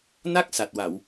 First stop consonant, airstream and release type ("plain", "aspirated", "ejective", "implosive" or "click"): plain